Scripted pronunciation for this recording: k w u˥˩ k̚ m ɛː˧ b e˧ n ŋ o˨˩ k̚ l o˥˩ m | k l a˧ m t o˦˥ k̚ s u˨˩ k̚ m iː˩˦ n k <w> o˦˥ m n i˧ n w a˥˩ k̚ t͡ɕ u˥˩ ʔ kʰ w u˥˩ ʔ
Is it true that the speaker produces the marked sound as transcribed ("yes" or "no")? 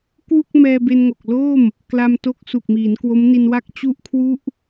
yes